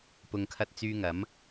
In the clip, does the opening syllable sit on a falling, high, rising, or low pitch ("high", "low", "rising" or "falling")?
low